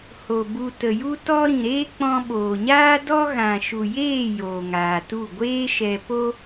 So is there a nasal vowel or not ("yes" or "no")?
yes